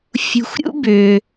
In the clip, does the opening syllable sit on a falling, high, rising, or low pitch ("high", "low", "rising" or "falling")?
low